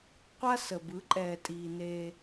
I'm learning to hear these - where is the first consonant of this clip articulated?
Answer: uvula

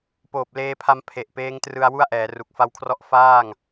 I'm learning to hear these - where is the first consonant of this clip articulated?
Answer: lips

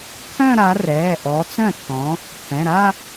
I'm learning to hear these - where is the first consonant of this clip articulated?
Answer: velum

